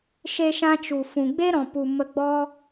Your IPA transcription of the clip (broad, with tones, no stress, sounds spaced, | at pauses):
ʃ e˧ ʃ ã˧ t͡ʃ u˨ f ũ˨ ɡ͡b e˦ ɾ ɔ̃˨ p u˨ m ə˧ ɡ͡b ɔ˦